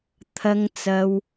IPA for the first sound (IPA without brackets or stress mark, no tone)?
t̪ʰ